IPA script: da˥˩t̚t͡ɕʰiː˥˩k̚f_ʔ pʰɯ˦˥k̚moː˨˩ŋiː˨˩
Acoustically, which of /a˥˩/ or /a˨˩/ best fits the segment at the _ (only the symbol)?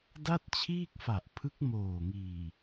a˨˩